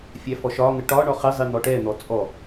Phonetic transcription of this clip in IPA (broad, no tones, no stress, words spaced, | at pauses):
fʲæfɔʃɒŋə ʈɒ ɳɔχɪzˤi n̪ɔʈɛn̪ɔ t͡sʼɔ